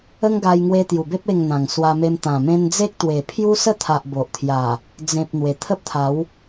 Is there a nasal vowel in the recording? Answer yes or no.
yes